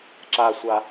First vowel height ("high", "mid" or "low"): low